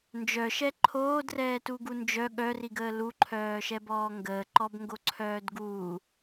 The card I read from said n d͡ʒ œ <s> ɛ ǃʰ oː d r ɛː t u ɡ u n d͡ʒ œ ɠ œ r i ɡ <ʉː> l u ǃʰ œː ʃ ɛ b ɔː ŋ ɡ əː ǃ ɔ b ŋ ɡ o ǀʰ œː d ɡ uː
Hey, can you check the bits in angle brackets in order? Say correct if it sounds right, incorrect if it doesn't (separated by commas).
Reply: incorrect, incorrect